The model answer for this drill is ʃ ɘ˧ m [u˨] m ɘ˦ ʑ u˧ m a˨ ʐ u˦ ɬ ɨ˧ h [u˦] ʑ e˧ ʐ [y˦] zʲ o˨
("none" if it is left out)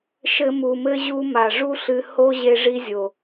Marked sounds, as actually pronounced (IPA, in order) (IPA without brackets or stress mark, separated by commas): u˨, o˦, i˦